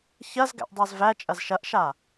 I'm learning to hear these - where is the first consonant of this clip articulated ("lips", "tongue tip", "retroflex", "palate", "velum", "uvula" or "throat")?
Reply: palate